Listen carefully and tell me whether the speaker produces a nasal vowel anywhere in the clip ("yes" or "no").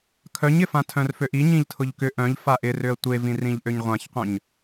yes